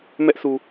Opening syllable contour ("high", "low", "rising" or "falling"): high